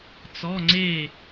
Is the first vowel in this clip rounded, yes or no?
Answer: yes